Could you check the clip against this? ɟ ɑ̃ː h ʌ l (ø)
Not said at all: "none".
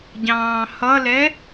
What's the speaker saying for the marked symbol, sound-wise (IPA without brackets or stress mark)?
ɛ